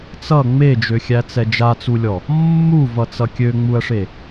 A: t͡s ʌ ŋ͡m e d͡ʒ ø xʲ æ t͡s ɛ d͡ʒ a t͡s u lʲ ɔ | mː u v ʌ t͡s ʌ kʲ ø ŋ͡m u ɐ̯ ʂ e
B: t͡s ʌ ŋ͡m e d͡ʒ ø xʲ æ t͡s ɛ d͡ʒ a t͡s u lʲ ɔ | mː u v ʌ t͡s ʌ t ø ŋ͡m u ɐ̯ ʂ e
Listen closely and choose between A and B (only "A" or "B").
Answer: A